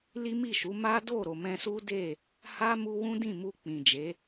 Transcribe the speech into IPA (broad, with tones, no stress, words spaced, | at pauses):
li˦mi˦˨ʃu˨˦ ma˦do˦˨ɾo˨ mɛ̃˧su˦de˦˨ | ha˦mu˧wũ˦ dĩ˦˨mu˧ k͡pĩ˨ d͡ʒe˨˦